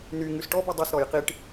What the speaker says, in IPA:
n y ŋ ʉ s ʈ ɔ b y dˤ y s ɾ ɔ j q i ʈ

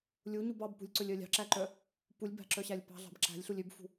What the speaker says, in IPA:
lʲ u ɲ u b ɑ b p ṳ lʲ ǀ ɵ lʲ œ lʲ ɑ̤ ǁ æ ǃ œ | p u lʲ b æ̤ ǁ œ ɕ æ lʲ p ɑ̤ ɮ ɑ̤ b ǁ æ̤ lʲ ɬ u lʲ ø b f ṳ

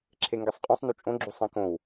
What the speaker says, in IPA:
ǁʰ e ŋ ɡ e sˤ qʼ ũ sˤ n u t͡ʃʼ õ ɡ͡ǁ u sˤ ĩ k õ w

